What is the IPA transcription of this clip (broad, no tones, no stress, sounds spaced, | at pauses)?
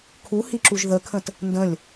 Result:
kʰ u h i ǁ u ʒ ð ə kʰ ə̃ t | n d ə̃ lʲ